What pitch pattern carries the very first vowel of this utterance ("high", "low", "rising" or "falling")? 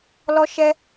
high